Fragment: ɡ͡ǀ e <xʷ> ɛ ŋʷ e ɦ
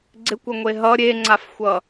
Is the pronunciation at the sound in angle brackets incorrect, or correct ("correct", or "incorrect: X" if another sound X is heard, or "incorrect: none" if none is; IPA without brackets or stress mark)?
incorrect: kʷ